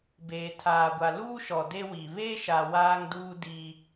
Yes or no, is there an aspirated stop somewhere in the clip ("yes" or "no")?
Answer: yes